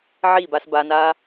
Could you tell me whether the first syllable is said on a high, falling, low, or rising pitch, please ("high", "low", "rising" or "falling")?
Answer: falling